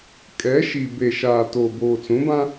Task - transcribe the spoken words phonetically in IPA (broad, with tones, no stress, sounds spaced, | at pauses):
kʼ ɛ˨˦ ʃ i˨ b e˨ ʃ aː˨ t oː˨ b oː˨ t͡s ũ˨˦ b ã˦